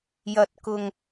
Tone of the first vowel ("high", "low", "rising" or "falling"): low